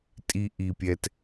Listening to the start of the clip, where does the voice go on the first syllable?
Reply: high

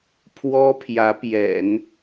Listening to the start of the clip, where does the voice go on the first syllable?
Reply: high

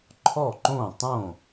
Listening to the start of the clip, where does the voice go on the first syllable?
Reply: falling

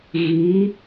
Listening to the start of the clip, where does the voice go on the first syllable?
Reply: rising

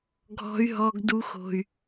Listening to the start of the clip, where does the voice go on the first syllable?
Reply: high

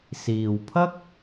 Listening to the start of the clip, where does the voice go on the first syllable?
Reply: low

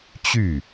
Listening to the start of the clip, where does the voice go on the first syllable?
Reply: falling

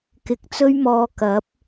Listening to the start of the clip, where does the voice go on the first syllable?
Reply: rising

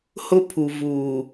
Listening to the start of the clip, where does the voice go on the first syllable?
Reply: high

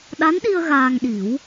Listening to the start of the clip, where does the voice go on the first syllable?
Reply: rising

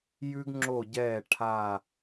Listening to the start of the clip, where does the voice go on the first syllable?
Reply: high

